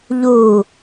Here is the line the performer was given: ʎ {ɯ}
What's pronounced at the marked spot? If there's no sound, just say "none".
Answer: u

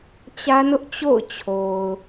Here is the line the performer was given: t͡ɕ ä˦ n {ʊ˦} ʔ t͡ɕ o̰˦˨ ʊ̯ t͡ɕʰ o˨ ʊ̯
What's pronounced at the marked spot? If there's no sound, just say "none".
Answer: ʊ˦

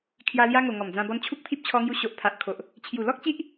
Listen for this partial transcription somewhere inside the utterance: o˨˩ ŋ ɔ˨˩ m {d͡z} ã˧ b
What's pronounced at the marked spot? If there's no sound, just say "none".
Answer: d͡z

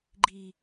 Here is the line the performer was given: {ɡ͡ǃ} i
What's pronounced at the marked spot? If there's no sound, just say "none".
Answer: ɡ͡ǃ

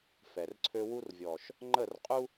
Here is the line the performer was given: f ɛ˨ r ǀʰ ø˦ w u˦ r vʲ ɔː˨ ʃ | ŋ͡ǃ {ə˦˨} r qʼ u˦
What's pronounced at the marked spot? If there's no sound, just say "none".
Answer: ə˦˨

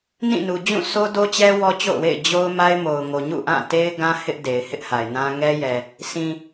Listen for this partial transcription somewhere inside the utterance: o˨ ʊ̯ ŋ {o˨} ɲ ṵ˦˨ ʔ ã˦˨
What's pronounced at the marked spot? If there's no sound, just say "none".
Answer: o˨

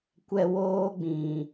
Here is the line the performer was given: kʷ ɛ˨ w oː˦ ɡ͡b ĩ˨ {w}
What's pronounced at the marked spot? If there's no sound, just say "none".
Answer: none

